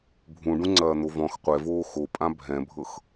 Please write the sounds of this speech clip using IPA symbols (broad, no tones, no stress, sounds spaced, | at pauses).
bʱ ũ ɖ ũ ŋ͡ǀ ɐː n̪ o v ɔ̃ x qʷ ɛ v oː x o pʼ ã bʱ ɛ̃ bʱ ɤ x